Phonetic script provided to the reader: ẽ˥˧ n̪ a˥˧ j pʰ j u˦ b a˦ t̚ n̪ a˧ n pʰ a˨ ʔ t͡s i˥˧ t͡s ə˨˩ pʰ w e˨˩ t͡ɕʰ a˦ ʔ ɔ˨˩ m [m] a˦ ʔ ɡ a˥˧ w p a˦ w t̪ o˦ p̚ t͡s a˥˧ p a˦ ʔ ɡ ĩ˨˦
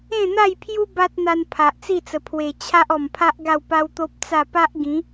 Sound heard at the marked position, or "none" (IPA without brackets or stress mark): pʰ